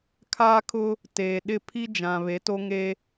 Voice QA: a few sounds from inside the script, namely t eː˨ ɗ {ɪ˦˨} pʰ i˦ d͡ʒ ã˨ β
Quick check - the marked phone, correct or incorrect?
correct